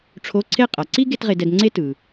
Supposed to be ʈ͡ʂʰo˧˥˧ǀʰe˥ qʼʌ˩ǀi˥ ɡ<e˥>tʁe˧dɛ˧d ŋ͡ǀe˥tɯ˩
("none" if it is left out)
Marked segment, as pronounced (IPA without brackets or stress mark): e˥